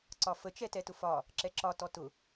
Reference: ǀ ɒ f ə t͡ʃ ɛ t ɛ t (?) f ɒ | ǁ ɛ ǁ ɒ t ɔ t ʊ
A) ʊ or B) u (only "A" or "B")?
A